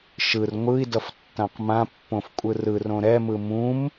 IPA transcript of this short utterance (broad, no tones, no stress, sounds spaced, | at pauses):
ʃ ɯ r ŋʷ ɯ i̯ d ʌ f tː ã q m ã pː õ f kʷʼ ɯ r ɯ r õ ɾ ɛ m ɯ m ũ m